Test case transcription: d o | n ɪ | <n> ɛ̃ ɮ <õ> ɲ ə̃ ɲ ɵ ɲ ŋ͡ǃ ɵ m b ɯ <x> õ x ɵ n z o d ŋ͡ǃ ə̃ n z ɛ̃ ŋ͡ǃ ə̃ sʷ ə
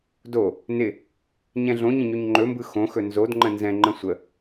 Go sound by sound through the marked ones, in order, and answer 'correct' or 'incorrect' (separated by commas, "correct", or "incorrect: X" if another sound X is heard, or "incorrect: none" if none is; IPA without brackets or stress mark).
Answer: incorrect: ɲ, correct, correct